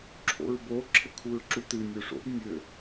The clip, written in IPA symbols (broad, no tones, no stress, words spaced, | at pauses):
ǁʰo̰ɹbo ǁʰɘkʰuɹǁutɨ nʲoʂo̰b nʲɘ